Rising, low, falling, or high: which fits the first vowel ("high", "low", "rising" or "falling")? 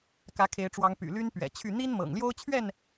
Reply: rising